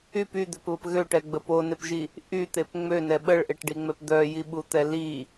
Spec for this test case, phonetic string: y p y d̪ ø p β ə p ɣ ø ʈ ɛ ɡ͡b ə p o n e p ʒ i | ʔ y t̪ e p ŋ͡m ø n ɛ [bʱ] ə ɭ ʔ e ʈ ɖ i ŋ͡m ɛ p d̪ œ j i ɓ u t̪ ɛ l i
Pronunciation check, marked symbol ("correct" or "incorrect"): incorrect